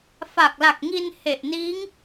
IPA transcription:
f a˨˩ k̚ l a˨˩ k̚ ŋ i˧ n h e˨˩ ʔ n iː˦˥ ŋ

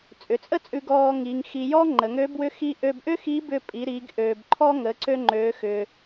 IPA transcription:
t͡sʼ ʏ˩˧ t͡sʼ ə˥ t͡sʼ ʉ˧ ɡ ɔː˧ ŋ iː˩˧ ŋ x i˧ j ɔː˥ ŋ͡ǃ ə˩˧ ŋ ø˧˥ b w ʏ˧˥ x i˧ ʔ ø˧ b ʔ ʏ˥ x i˧˥ b ʏ˧ pʼ i˩˧ ɾ i˩˧ ɡ ʔ øː˩ b ǃʰ ɔ˧ ŋ ə˩˧ ǀ ø˧ ŋ͡ǃ øː˩˧ x ʏː˩

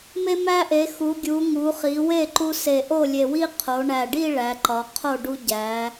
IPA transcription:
m e˧ m æ˧ ʔ e˩˧ x u˩˧ ɡʲ u˩˧ ŋ u˩˧ χ i˩˧ w e˥˩ ǃ u˧ s e˨˩ ʔ o˥˩ lʲ e˨˩ w i˥˧ qʰ o˩˧ ɳ æ˨˩ ɖ i˥˧ ɭ æ˩˧ ǃ ɒ˩˧ qʰ o˥˩ ɖ u˧ ɟ æ˩˧

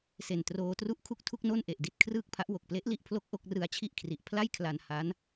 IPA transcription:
s e˨˩ n t r oː˧ t r u˥˩ ʔ kʰ u˥˩ k̚ tʰ u˥˩ k̚ n o˥˩ n ʔ e˨˩ ʔ d i˦˥ t̚ kʰ r ɯː˥˩ k̚ pʰ a˦˥ ʔ w o˨˩ k̚ p l e˦˥ ʔ l i˦˥ ʔ pʰ l o˦˥ k̚ ʔ o˥˩ k̚ r ɯ˧ a̯ t͡ɕʰ i˥˩ ʔ kʰ r i˨˩ ʔ pʰ l a˥˩ j kʰ l a˧ n h a˦˥ n

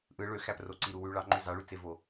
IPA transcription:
ʔ ɯ ɭ ø x æ p r o ǀ i ɾ u w y ɭ ɑ ŋ͡ǃ ø z ɑ ɭ y t͡s e v o

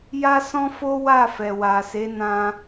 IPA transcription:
j a˦ s ɔ̃˦ f o˦ w a˦˨ f ɛ˨ w a˨ s e˨˦ n ã˧

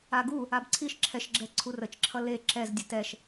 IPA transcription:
a ɡ u | a b ǀʰ i ʃ ǁʰ ɛ ʃ ɡ͡ǁ ɛ ǀʰ u r ə t͡ʃ ǁʰ ʌ l e ǁ ɛ z dʲ ə t ɛ ʃ

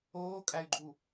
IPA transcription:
oː kʼ æ y̯ ɡ͡ǃ u

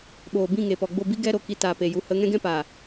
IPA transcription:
ɓ oː˨ b ĩ˦˨ ŋ e˨ p ɔ˨ ɡ͡b o˦˨ b i˦ ɡ ɛ˦ ɾ o˨ k i˧ t aː˨ p e˨ j u˨˦ h ə˨˦ ŋ ɛ̃˦ ɡ ɛ̃˦ p a˨

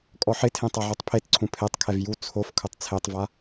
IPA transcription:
kʼ ɔ ħ ɪ tʰ ẽ tˤ a ʕ o tˤ pʰ e t ǀʰ ũ pʰ e tˤ kʰ ɛ v j u t͡sʰ o f kʰ ʊ tˤ t͡sʰ e tˤ v a

